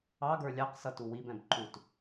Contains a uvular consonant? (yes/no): yes